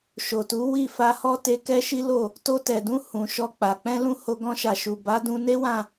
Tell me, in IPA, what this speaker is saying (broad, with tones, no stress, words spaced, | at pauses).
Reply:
ʃo˨tu˨˦ wi˦˨fa˧hɔ˦ te˧kɛ˦ʃi˦lo˦˨ | to˧tɛ˨dũ˧ hũ˨ ʃɔ˧ k͡pa˨ k͡pɛ̃˧lũ˧ ho˧ɡɔ̃˧ ʃa˨ʃu˨ ba˨˦dũ˧ne˦ wã˦˨